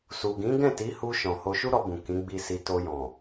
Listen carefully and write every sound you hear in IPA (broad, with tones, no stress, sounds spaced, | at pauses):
s u˨ ɡ ĩ˨˦ ɡ ɛ̃˦˨ t i˨˦ h u˧ ʃ ɔ̃˨ h o˧ ʃ u˦ ɾ ɔ˧ b ũ˨ k ĩ˨˦ ɡ͡b i˧ s i˧ t o˧ j ɔ̃˨